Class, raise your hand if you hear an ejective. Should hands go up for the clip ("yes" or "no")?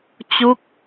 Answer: no